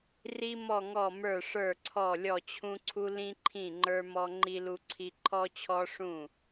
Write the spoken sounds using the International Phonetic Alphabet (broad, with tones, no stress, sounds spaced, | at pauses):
r i˧ m ɔ˧˩ ŋ ɔ˧˩ m ə˞˧˩ ʂ ə˞˧˩ ǀʰ ɔ˧˩ lʲ ɔ˧˩ t͡ɕʰ ũ˧ ǀʰ u˧ l ĩ˧ ǃʰ ĩ˧˩ ŋ͡ǃ ə˞˧ m ɔ˧ ŋ͡ǃ i˧ l u˧ ǀʰ i˧ ǃʰ ɔ˧ t͡ɕʰ ɔ˧ ʂ ũ˧˩